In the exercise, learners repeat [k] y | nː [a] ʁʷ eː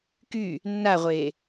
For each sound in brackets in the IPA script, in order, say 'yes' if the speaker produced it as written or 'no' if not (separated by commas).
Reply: yes, yes